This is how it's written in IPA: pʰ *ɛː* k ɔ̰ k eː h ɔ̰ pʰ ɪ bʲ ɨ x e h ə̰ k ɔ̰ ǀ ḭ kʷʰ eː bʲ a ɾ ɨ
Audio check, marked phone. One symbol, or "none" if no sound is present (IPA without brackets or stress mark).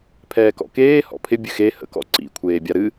ɛː